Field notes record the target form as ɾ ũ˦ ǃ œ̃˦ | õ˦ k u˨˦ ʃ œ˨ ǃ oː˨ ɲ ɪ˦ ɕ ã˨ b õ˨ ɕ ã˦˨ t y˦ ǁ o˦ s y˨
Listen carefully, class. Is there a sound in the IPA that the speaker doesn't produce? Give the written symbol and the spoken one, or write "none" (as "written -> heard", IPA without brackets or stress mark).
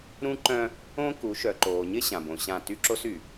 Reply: none